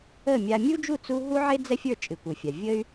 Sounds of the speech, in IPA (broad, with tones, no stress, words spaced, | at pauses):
ə˥˩ mʲa˧ mʲu˥d͡ʒu˥˩ t͡su˥ ɦu˥ʕe˥ d͡zɛ˥fʲə˞˥˩ t͡ʃʼɨ˩kʷɨ˩fʲa˩ vʲə˥y̯